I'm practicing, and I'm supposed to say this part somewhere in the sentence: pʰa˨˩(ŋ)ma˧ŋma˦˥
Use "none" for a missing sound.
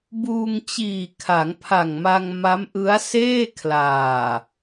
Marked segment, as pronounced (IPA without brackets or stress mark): ŋ